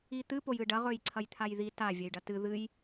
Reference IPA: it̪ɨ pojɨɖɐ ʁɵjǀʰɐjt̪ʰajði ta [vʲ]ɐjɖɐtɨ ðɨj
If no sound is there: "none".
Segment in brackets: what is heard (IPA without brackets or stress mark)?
vʲ